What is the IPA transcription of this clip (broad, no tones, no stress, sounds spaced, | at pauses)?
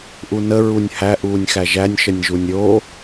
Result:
ʔ u n ə ɹ u nʲ h æ ʔ uː nʲ x æ ʒ æ nʲ ʃ ə nʲ ʒ u nʲ ɾʲ o